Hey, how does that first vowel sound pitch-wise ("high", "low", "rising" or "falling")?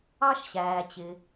high